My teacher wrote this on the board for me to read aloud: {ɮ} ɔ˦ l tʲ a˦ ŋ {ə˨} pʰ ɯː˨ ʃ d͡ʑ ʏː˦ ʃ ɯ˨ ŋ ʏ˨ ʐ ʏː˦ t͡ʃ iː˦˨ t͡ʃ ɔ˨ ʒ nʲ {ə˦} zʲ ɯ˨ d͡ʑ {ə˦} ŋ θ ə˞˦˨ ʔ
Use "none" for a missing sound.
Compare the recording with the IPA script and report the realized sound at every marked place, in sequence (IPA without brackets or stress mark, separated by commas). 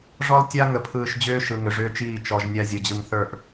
ʐ, ə˨, a˦, ɯ˦